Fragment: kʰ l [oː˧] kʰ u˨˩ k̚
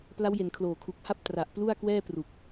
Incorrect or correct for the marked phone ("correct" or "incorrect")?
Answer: incorrect